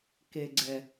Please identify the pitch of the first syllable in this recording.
low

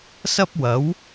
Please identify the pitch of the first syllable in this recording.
high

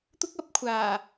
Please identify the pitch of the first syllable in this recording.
high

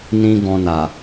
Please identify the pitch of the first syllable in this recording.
high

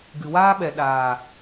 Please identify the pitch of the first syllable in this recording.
low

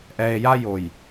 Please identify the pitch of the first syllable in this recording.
low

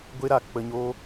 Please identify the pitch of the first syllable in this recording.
high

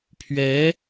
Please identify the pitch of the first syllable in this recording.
rising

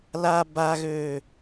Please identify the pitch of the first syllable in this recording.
low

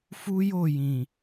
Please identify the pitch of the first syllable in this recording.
high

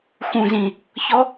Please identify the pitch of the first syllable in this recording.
low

